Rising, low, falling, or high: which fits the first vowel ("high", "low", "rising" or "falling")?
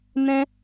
high